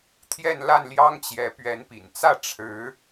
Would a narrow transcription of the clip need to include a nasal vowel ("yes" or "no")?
no